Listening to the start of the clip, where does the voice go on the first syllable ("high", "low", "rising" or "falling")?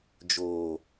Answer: low